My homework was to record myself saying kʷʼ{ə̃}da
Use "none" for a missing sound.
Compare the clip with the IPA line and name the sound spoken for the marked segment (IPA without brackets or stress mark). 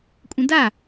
ə̃